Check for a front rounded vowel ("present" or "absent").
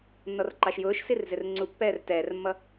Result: absent